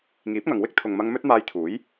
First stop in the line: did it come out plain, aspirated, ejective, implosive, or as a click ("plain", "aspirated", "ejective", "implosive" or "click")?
plain